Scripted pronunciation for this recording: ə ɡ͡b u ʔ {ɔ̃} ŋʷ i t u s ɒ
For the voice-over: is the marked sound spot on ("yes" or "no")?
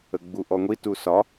no